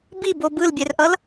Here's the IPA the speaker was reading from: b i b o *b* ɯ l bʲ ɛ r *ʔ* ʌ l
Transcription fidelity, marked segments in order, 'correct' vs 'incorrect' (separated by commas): correct, correct